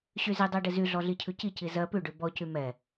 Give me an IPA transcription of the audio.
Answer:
ɕ y z i dˤ ɜ ɖ ɪ z y ɮ ɔ ɮ i cʰ ʉ c i c i z ɜ p ʉ ɖ ʉ b ɔ c y m ɛ

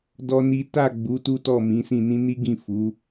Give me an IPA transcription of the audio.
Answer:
d ɔ˦ n i˦ t a˦˨ ɡ͡b u˨˦ t u˦ t ɔ˦˨ m ĩ˨˦ s ĩ˦˨ n ĩ˧ n i˦ ɡ ĩ˦˨ f u˨˦

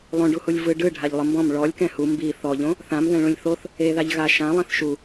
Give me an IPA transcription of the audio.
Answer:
lˠ õ ɖ u h u lʲ v ɯ ɖ ɯ ɖʱ a ʎ lˠ ɯ m b ɔ̃ m ɭ ɔ lʲ k ɛ̃ h u m b i θ ɔ ʎ õ | θ ã m ð ɛ̃ ɭ ũ lʲ θ o θ | e ð a ʎ ɣ a ʃ ã lˠ ĩ θ ʃ u

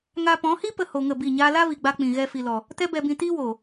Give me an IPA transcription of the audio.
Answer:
ŋ a˧ p ɔ̃˨˦ h i˦ p ə˧ h o˧ ŋ ə˦˨ b i˦˨ ɲ aː˦ l a˦ v i˨ ɡ͡b a˧ k͡p ĩ˨ ɣ ɛ˧ f i˨ l ɔ˨ | t ɛ˦ b ɛ˧ b ĩ˧ t iː˦ w oː˨

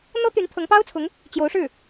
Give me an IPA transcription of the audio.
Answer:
n̪ ɤ˥ t̪ y˧˥ n t̪ʰ ɤ˧˥ ŋ p ɑ˥ ʊ̯ t͡sʰ ʊ˧˥ ŋ | t͡ɕ j o˧˥ ʊ̯ ʂ ɻ̩˥˩

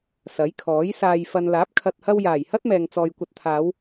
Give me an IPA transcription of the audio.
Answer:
s ɐ˨˥ j kʰ ɔː˨˥ j s aː˨ j f ɐ˨ n l aː˨˥ p̚ kʰ ɐ˨ t̚ h ɐ˧ w j aː˨˩ j h ɐ˥ t̚ m ɛː˨ ŋ t͡s ɔː˨ j kʷ ɐ˨ t̚ t̪ʰ aː˨˧ w

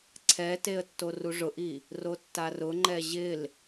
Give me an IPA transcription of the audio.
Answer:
ǀʰ ɛ t e ə̯ tː o r u ʐ ʊ ʔ i | r o tː a r ʊ ŋ͡ǃ ɛ ʑ ɪ l

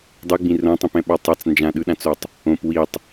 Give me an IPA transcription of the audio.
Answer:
dˤ ɯ ɡ͡b ĩ r õ tˤ ĩ p ɛ̃ ɓ a tˤ a t͡s n d͡ʒ ã ɗ ɯ ɗ ã t͡s o tˤ | õ p w i tˤ

